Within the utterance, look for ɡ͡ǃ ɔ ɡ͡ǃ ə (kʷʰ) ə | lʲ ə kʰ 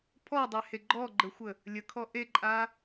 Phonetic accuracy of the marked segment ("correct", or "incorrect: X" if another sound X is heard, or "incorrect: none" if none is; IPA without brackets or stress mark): incorrect: xʷ